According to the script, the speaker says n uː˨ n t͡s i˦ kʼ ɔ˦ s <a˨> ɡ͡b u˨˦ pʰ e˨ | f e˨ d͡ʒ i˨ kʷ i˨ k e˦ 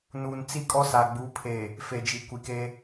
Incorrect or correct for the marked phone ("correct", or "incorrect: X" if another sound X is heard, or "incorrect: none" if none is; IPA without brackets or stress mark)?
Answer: correct